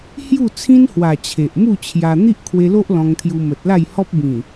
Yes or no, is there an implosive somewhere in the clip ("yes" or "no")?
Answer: no